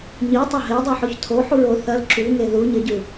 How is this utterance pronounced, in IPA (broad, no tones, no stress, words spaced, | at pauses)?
ɲitˤɐ ɦedˤuħoç tʰoħuɹ o θɐl ǁuŋe ðuɲɐɟʉ